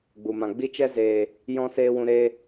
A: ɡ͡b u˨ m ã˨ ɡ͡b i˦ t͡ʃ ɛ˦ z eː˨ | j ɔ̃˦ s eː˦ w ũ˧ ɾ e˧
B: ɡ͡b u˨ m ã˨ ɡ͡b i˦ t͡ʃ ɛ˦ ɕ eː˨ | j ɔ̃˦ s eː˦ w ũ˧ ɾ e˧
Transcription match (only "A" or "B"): A